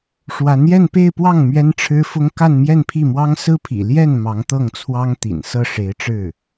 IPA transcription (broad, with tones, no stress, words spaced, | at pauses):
ʂwa˧˥njɛ˥˧npe˥˧ɪ̯pwɑ˥˩ŋ mɥɛ˥nʈ͡ʂʰɻ̩˥fʊ˥ŋ ka˥˧nmjɛ˥˧npʰi˥˩mwɑ˥ŋ sɹ̩˥pʰḭ˨˩ ljɛ˥˩n mɑ˧˥ŋt̪ɤ˥˩ŋt͡sʰwɑ˥ŋ t̪ḭ˨˩nsɤ˥˩ʂe˧˥ɪ̯ ʈ͡ʂɻ̩˥˩